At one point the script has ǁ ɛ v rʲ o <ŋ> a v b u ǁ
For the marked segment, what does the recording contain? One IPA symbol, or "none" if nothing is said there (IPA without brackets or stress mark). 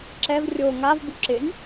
ŋ